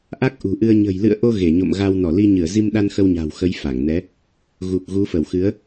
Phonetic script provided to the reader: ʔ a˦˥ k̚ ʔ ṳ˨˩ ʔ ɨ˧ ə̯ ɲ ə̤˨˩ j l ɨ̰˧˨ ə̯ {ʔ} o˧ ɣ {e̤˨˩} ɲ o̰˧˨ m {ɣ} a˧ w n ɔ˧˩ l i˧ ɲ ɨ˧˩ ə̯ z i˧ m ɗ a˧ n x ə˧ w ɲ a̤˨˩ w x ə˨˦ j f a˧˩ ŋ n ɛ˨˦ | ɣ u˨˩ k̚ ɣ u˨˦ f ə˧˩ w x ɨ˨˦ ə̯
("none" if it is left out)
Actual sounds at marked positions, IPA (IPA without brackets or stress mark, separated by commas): ʔ, e˧˩, ɣ